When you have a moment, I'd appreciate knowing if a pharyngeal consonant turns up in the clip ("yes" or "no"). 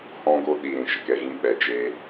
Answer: no